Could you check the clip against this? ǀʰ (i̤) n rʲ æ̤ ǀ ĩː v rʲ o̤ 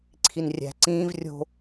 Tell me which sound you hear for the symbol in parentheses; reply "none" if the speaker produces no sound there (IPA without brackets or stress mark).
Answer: i